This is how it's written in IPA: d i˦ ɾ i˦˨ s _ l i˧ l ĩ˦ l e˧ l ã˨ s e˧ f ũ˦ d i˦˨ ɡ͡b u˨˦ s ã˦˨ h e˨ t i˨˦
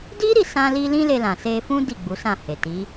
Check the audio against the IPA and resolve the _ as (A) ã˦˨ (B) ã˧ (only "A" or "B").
B